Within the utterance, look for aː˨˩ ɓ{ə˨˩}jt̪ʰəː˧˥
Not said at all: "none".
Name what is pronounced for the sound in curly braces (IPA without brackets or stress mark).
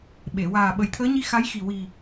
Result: ə˨˩